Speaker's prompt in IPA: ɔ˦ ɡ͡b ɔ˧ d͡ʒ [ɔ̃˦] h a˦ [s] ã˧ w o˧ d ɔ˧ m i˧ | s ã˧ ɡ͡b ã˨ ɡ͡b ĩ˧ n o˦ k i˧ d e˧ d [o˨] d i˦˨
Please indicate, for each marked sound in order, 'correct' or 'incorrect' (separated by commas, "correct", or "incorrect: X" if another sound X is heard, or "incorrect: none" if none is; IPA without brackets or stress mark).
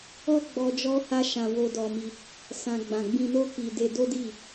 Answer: incorrect: ɔ˦, incorrect: ʃ, incorrect: o˦